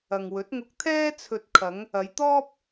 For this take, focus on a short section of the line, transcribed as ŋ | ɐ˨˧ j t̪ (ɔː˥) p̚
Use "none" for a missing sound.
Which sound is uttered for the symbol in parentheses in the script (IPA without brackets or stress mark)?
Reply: ɔː˥